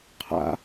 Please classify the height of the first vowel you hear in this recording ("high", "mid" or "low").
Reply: low